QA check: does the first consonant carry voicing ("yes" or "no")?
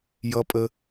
yes